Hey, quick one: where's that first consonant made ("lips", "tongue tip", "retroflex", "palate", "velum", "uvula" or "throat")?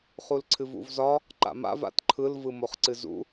uvula